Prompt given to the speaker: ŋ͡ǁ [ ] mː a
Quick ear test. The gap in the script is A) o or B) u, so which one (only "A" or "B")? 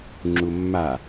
B